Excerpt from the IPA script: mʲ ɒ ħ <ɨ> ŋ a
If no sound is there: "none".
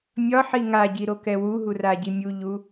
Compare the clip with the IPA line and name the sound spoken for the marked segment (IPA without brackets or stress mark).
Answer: i